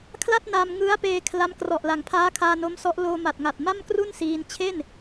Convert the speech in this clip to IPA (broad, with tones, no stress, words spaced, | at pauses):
kʰla˥˩t̚na˧m ŋɯ˦˥a̯peː˧ kʰla˦˥m krɔ˨˩ʔla˩˦ŋpʰaː˦˥ kʰaː˧no˦˥msɔ˦˥ʔ loː˧ma˨˩t̚ ŋa˨˩t̚ma˥˩mkru˥˩n siː˧n t͡ɕʰe˥˩n